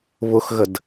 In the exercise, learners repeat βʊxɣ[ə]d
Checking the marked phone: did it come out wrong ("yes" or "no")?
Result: no